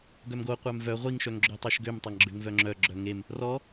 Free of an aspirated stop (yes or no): yes